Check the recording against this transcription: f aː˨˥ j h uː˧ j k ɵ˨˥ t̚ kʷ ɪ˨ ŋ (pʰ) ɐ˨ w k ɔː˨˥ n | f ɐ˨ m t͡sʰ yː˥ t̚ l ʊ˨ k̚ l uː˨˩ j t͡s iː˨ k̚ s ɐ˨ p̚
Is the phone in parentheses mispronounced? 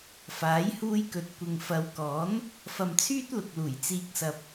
yes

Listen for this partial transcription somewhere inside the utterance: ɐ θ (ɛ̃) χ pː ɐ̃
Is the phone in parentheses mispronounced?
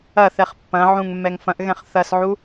yes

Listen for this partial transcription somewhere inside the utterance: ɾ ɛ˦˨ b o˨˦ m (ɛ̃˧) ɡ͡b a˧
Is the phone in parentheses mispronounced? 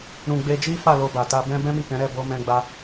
no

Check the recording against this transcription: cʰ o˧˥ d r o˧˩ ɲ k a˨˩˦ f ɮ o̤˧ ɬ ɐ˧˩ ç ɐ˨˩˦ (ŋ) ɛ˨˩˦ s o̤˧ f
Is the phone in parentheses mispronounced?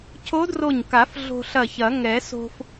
no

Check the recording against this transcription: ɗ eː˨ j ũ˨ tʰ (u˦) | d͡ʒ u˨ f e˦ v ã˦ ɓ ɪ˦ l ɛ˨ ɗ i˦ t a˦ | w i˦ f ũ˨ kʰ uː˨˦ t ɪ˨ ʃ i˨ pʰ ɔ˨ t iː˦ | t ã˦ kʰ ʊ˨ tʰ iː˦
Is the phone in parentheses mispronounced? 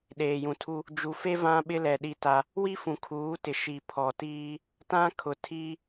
no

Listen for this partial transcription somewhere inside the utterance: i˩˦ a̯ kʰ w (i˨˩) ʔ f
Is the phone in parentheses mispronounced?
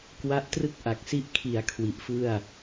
no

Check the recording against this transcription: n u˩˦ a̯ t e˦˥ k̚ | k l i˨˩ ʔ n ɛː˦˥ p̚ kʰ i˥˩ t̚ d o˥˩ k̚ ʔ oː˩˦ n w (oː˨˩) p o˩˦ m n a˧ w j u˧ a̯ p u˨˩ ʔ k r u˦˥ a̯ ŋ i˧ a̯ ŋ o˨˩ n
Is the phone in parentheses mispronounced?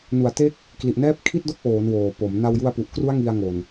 no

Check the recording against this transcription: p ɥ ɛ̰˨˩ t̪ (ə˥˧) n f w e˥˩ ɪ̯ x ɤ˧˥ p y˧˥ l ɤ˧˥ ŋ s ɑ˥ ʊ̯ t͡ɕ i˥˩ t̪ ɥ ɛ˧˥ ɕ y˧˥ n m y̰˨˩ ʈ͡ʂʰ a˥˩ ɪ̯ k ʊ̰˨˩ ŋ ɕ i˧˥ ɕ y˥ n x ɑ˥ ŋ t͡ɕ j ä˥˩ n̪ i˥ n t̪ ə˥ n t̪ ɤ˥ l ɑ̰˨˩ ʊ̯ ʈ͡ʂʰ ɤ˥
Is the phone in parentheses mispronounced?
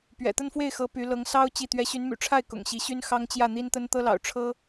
no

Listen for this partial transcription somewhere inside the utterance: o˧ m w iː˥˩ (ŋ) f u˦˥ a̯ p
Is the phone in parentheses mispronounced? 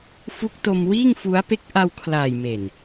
no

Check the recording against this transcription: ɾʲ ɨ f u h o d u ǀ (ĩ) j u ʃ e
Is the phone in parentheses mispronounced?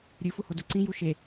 no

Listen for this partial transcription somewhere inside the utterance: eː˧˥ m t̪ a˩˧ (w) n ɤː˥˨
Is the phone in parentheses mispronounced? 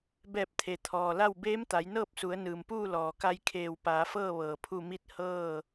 yes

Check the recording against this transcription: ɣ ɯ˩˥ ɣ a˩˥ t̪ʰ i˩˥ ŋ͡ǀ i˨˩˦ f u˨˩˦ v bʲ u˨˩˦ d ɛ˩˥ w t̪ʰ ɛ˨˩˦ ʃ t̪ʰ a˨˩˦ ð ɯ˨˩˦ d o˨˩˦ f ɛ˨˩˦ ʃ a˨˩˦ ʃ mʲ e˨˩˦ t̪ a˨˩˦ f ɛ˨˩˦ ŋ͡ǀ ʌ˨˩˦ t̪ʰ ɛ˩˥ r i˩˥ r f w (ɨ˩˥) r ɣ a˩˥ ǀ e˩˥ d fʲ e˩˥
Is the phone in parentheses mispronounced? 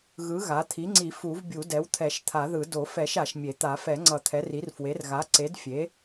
yes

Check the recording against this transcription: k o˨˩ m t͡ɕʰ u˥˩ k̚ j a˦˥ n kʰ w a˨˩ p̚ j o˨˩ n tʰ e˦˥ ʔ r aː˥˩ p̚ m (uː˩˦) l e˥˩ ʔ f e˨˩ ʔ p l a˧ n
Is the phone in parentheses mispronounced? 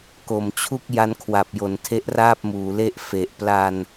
no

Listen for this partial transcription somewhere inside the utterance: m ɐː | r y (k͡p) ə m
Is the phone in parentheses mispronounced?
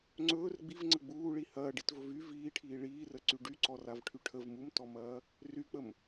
no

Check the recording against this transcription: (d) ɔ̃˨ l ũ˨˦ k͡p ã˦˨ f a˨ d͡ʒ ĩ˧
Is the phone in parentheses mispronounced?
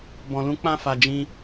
yes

